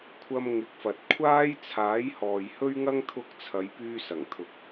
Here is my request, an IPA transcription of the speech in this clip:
kʷʰ ɐ˧ m ŋ ɪ˨˥ k̚ f ɐ˨ t̚ kʷʰ aː˥ j t͡sʰ aː˨˥ j h ɔː˨ j h ɵ˥ ɥ ŋ ɐ˧ ŋ t̪ʰ ʊ˨˥ k̚ t͡sʰ ɐ˨˧ j p yː˧ s ɐ˨˩ ŋ t̪ʰ ʊ˨˥ k̚

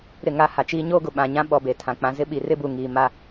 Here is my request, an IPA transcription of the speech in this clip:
ɾ ɪ˦˨ ŋ a˦ h a˨ t͡ʃ iː˦ ɲ oː˦ ɡ ʊ˨ ɓ ã˨ ɲ ã˦ ɓ ɔ˨ b e˨ tʰ ã˨ k͡p ã˨ z ɪ˦ ɓ i˨ r ɪ˦ b u˨ ŋ iː˨ m a˦

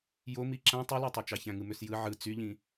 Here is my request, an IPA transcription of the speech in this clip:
j o m i ǁ æ̃ tˤ i l æ tˤ ø t͡ʃ ɑ ç æ̃ ŋ ɯ m ø s j ɯ ʕ ɯ t͡s y ʎ ĩ

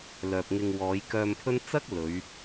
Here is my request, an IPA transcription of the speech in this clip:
l œː˨ p̚ ŋ ɪ˧ ŋ w ɔː˨˧ j k œː˧ m pʰ ɵ˥ n t͡s ɐ˥ k̚ l ɵ˨˧ ɥ

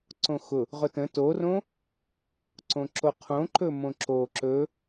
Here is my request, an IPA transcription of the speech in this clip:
ǀ õ x ʊ | ʁ ʊ t ə̃ t o r õ | ǀ õ ǁ o qʰ õ ǃ ɵ m õ ǁ o ǁ ɵ

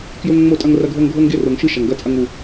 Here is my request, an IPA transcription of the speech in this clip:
k j ɵ˦ ŋ ŋ͡m o˦˨ tʼ ɐ˦ ŋ r ɐ˦ ɡʱ o˦ ŋ ɡʱ o˦ ŋ ɡ e˦ r o˨ ŋ ʃ ɨ˦ ʃ ɐ˨ ŋ ɡ ɐ˦ t͡sʼ ɐ˦ ŋ u˦

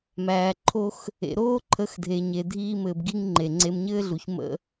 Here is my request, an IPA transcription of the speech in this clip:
m æː˨ ǃʰ o˦ x | ḛ˨ ɾ oː˦ ǃʰ ə˨˦ x dʱ e˨ ɲ e˨ dʱ iː˧ m ɘː˨ b ɡ i˦ ŋ ŋ͡ǃ e˨ ŋ͡ǀ e˧ m ɲ ɘː˦ ɮ u˨ ç m ə̰˦

